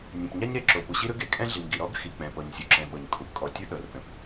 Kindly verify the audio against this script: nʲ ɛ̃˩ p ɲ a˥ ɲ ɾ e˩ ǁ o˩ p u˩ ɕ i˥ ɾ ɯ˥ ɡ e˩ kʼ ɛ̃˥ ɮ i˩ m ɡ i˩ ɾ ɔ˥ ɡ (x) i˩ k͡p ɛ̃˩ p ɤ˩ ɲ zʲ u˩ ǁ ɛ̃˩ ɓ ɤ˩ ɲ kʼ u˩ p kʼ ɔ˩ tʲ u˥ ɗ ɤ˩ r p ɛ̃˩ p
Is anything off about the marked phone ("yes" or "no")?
no